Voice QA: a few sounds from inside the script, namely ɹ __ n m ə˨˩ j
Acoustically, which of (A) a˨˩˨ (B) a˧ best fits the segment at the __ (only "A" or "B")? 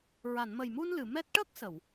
A